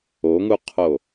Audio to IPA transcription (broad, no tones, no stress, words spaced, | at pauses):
oŋuqʰo